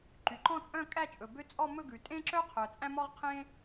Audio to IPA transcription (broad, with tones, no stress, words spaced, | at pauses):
ǃy˩ǃɔ̃˥˧t͡sʼœ̃˥˧kʼæ˥˧ t͡ʃʼɵ˩bø˥ t͡sʼɔ˥˧mɵ˥˧ ɡʉ˩tʼẽ˥ǁœ˥ qʰœ˩t͡sʼæ̃˥mɔ˥ʁqʰẽ˥